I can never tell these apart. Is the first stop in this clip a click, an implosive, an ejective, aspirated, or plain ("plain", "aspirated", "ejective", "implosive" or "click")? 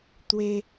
plain